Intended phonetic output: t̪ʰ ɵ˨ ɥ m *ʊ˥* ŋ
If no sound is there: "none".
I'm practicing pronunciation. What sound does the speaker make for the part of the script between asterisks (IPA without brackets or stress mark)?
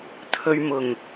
ʊ˨˩